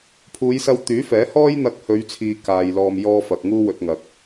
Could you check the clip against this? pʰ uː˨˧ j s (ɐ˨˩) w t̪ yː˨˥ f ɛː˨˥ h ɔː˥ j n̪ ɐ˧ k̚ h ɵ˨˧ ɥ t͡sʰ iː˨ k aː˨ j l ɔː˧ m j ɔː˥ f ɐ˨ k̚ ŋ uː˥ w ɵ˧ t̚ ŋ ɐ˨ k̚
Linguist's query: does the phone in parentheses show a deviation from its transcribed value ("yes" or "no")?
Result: yes